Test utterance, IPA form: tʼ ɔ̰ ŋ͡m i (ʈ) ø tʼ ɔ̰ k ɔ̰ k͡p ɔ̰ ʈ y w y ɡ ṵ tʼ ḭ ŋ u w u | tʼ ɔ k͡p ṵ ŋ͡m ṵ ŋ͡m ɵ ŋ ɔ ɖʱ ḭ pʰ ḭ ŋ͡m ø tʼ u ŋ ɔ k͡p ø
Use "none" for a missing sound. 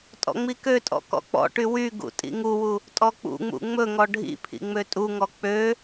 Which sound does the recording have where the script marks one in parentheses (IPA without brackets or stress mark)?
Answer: k